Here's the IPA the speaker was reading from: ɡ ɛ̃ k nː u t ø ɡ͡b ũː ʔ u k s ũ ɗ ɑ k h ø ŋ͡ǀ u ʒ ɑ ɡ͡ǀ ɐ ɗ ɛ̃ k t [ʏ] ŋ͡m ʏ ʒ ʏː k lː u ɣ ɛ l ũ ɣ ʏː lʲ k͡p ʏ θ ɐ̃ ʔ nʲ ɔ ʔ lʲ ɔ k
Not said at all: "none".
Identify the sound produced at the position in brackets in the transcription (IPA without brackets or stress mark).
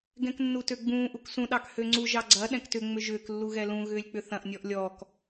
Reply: ʏ